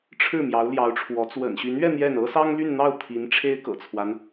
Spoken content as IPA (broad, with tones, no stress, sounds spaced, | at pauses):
ʈ͡ʂʰ ɻ̩˥˩ m j ɑ˧˥ ʊ̯ l j ɑ˧˥ ʊ̯ ʈ͡ʂʰ w ɔ˧˥ t͡s w ə̰˨˩ n ɕ y˧˥ n ɥ ɛ˥˧ n̪ j ɛ˥˩ n ɤ˥ s ɑ˥ ŋ l y˥˧ n n̪ ɑ˥˩ ʊ̯ t̪ʰ i˧˥ n ʈ͡ʂʰ e˥ ɪ̯ k ɤ̰˨˩ t͡sʰ w a˦ n